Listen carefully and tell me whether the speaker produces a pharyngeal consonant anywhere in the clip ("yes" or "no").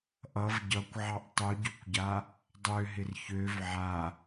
yes